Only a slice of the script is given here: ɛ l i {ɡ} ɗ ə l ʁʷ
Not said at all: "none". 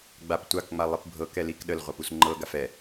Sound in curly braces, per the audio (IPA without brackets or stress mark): k